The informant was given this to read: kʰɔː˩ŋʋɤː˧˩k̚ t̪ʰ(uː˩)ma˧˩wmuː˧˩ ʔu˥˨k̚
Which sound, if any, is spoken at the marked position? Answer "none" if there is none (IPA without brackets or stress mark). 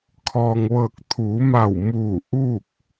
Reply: uː˩˧